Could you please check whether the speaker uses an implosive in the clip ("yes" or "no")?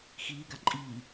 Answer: no